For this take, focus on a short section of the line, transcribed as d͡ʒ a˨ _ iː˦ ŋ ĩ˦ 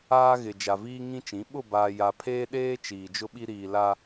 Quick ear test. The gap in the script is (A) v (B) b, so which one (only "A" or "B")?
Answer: A